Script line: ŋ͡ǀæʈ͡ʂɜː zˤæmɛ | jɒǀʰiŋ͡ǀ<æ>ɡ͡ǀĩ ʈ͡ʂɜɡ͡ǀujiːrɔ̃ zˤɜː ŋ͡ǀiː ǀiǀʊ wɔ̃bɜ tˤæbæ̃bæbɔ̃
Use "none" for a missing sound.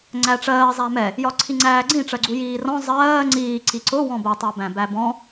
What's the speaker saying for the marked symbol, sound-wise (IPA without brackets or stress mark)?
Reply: æː